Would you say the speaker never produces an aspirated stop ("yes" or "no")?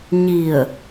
yes